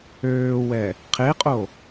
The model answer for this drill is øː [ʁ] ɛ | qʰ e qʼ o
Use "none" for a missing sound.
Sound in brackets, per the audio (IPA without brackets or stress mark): w